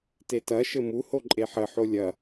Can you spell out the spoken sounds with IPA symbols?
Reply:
t e t ɐ ʃ ɘ m u h o ǃʼ e ħ ə ħ o lʲ ɐ

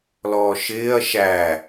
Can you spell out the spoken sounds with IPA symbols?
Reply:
l ɔː ʃ ɪː ɐ̯ ʃ æ

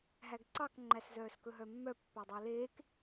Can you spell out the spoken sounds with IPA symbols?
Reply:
ɦ æ ɡ ǀ ɑ k ŋ͡ǃ æ s z œː s k ɵ ɦ œ mː œ pː æ dˤ æ l eː k

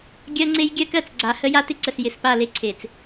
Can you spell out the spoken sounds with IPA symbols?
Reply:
ɡʲ ɜ˦ ŋ͡ǀ e˦ j ɡʲ ɜ˦ k ɜ˨ t͡s ɡ͡ǀ a˨ h ə˦ j a˦ t ɪ˦ ǀ ə˨ s j ɪ˨ s p a˦˨ l e˦ ǀʰ e˨ t͡s

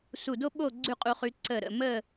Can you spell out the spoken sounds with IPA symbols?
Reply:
s u˧˩ d o˥ ɓ o˥˨ ɡ͡ǀ ʉ˥˨ qʼ u˧ χ ʉ˧ ǀ ə˧˩ ɾ ə̰˩˧˩ m ə˥˨

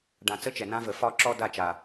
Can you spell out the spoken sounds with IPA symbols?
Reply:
ɖ ã˨ t͡s ə˦ t͡ʃ ɛ˨ n ã˦ v ə˨ f ɒ˦ ǁ ɔ˦ d a˦˨ t͡ʃ a˨

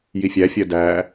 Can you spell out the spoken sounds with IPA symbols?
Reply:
j i fʲ æ fʲ ɜ d æ

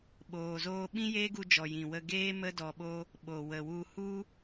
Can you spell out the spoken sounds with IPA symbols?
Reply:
ɓ oː˨ z oː˧ ɓ ĩ˦ j eː˦ ɡ u˧ d͡ʒ ɔ˨ j ĩ˨ w ə˧ ɡ eː˦ m ə˦ d ɔ˧ ɓ o˦ | ɓ o˨ w ə˨ w u˧ h u˦

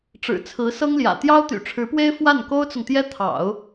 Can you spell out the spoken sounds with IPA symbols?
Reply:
ʈ͡ʂ ɻ̩˨˩ t͡sʰ ɹ̩˧˥ s ɤ˥ ŋ l j ä̰˨˩ t̪ j ɑ˥ ʊ̯ t̪ y̰˨˩ ʈ͡ʂʰ ɻ̩˧˥ p w e˥ ɪ̯ f w a˥˩ n k o˥ ʊ̯ t͡s ʊ˨ ŋ t̪ j ɛ˥ t̪ʰ ɑ̰˨˩˦ ʊ̯

